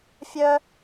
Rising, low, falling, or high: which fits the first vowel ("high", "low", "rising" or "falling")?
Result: high